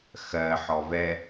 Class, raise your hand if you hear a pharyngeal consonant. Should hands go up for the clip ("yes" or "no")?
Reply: yes